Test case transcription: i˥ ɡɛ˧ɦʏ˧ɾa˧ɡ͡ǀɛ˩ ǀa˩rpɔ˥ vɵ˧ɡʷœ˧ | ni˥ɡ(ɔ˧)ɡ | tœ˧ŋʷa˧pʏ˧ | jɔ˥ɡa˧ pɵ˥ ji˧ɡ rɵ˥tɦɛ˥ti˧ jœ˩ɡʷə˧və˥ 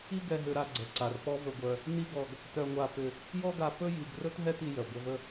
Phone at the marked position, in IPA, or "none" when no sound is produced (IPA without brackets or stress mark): ɔ˧